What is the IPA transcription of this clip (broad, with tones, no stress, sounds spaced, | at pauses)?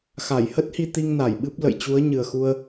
x a˧˩ j h ə˦˥ t̚ h i˧ t̪ i˧ ŋ n a˧˩ j ɓ ɨ˦˥ p̚ l ə̰˧˨ j t͡ɕ u˨˦ ə̯ ɲ ɨ˨˩ ə̯ x u˧ ə̯